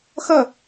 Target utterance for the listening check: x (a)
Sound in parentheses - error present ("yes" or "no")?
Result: yes